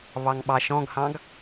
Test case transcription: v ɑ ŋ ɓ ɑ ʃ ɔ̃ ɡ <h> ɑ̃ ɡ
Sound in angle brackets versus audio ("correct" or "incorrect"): correct